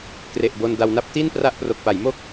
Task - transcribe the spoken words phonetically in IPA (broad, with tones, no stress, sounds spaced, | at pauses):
k r e˨˩ ʔ b o˧ n d a˧ w n a˥˩ p̚ t i˥˩ n p r a˥˩ ʔ p r o˨˩ k̚ p a˩˦ j m o˥˩ k̚